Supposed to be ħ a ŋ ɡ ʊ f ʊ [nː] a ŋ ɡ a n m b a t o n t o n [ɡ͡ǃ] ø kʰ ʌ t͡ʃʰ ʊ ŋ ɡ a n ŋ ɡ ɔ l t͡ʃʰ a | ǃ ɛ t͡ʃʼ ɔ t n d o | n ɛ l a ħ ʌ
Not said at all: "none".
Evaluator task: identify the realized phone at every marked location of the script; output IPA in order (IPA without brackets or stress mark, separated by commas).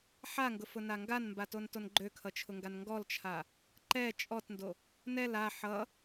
n, ɡ͡ǃ